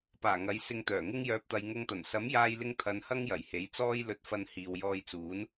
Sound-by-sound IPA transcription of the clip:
paː˨˩ŋɐ˨˥jsɪ˧ŋ t̪œː˨˩ŋɪ˥ŋjœː˧p̚t̪ɐ˧j ŋʊ˧ŋt̪ɐ˨˩n sɐ˨˥mjaː˧jlɪ˧ŋ t̪ʰɐ˨˧nhɐ˥ŋ jɐ˨˩jhe˨˥jt͡sɔː˥j lɵ˧t̚fɐ˧n hiː˨wjɔː˧jt͡suː˨˥n

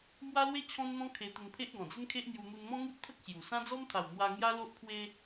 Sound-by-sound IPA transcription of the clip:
mwa˦lwe˦ t͡ɕʰɔ̃˦nn̪ɔ̃˦ kʰe˧ t̪ə˧npʰe˦ʔ ɡɔ̃˨˩d͡zə˦nkʰe˦ʔn̪ju˧ n̪u˧nmɔ̃˦ŋu˦t̚t̪ʰə˦k̚ ɕju˨˩ sã˦d͡zɔ˦mt̪ʰa˨˩w n̪wa˧ ŋja˦lo˦ʔpʰwe˦

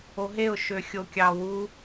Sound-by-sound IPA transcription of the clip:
oɦeʊ̯ ʃøxʲokʲɑwu

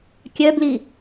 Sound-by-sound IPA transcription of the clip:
kʲœbli

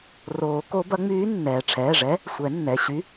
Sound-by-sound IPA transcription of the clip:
roː˨˩˦ko˧˥ bɐ˧˥ŋ͡myː˧˥ nːɛː˩ʈ͡ʂʰɛː˩˧˩ʐɛ˧˥ | sʷɛ˨˩˦nːɛ˩˧˩ ɕy˧˥

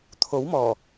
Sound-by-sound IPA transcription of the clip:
t̪ʰo˨˥w mɔː˨˩

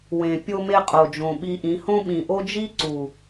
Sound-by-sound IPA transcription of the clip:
wẽ˨ pʲo˧me˧ qʼo˨d͡ʒõ˨ɓi˧ʔĩ˨˦ hõ˦ɓĩ˨ʔo˦ d͡ʒi˦ǀu˨

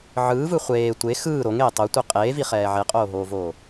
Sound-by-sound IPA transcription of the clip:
ʕɯːvɯ χʷeː tʷe xɯː ɾoŋeː tˤotʷi qʼeːviχɛː ʕeqʼoːɦoːvoː

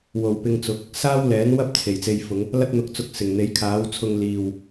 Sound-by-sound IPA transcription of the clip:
wo˨wpɪ˧ŋt͡sʊ˨˥k̚ | saː˥wlɛː˨˥nwɐ˥p̚ t͡sʰe˨˩jt͡se˧jfʊ˨˧ŋ | lɐ˥t̚n̪ʊ˧k̚t͡sʊ˧k̚ sɪ˨˩ŋn̪e˨˥jkʰaː˨˥wt͡sʰʊ˧ŋ liː˨w

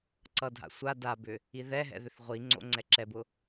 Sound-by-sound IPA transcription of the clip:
ǀʌdʱa̰ sʷa dabʏ | iðɛɦɛ̰ ðʏθʁʷiŋ͡ǀo̰ ŋ͡ǀɛǁɛbʊ

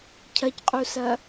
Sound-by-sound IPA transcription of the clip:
cʰɐcqʼusɐ

